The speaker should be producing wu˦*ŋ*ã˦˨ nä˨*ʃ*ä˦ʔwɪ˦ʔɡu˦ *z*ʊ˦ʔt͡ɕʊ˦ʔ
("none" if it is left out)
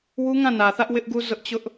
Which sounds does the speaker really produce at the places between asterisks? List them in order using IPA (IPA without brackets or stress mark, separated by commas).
ŋ, θ, z